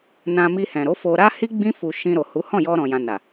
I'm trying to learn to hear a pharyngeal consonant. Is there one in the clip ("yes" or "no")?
no